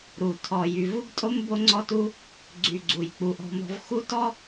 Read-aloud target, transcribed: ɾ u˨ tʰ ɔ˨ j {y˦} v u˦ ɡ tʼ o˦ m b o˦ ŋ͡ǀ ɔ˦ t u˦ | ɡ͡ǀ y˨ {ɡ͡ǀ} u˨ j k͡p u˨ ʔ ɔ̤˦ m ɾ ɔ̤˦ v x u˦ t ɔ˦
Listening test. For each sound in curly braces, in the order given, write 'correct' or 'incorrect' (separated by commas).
incorrect, correct